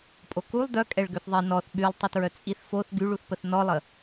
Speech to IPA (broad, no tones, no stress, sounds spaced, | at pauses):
pʼ o k u lˠ d œ kʼ ɛ ɭ ɡ ø θ ðˤ i n ɔ θ ɓ y lˠ tˤ ə t ɹ œ t͡sʼ i θ f o θ ɡ y ɭ u θ p ə θ n ɔ lˠ ə